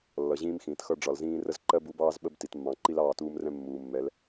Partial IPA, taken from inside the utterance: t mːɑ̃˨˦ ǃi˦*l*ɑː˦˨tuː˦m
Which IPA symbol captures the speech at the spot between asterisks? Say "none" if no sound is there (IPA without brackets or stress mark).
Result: l